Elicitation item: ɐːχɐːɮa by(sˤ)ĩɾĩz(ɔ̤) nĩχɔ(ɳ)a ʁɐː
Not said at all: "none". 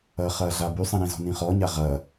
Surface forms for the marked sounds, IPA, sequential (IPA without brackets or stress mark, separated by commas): sˤ, ɔ̤, ɲ